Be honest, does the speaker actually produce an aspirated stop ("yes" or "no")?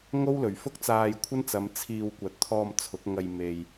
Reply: yes